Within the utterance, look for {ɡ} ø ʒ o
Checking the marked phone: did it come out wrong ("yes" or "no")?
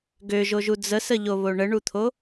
no